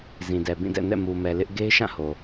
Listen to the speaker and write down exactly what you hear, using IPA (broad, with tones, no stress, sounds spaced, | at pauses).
z ĩ˨ d ɛ˨ b ĩ˦˨ d ɛ̰˦˨ n ɛ̰˦˨ m u˨ m ɛ˨ l ɪ˦ ʔ ɡ e˦ ɪ̯ ʃ ã˦˨ h o˨